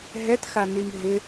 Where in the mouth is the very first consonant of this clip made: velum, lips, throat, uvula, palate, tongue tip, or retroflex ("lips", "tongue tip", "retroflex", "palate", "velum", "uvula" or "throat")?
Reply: throat